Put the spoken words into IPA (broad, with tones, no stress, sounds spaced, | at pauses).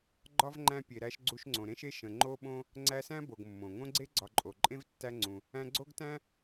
ɡ͡ǃ ɒ˥ v ŋ͡ǃ æ̃˥ pʲ e˨ ɾ æ˦ ʃ ɡ͡ǀ u˦ ʃ ŋ͡ǀ õ˨ ɾ ẽ˥ ʃ e˥ ʃ ə̃˨ ŋ͡ǃ o˥ ɓ õ˥ | ŋ͡ǀ æ˦ s æ̃˥ b o˨ ɡ mː õ˩ ŋ õ˦ ɡ͡ǀ e˦ ɡ͡ǀ ɒ˨ ǃʼ o˩ ǃʼ ẽ˥ v tː æ˦ ŋ͡ǀ ũ˩ | æ̃˦ ɡ͡ǀ o˥ ɡ t æ̃˥